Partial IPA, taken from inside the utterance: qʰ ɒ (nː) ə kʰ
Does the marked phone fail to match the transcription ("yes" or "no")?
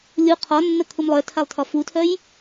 no